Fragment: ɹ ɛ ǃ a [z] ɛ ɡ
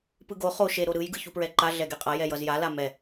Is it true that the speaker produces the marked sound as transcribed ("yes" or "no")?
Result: no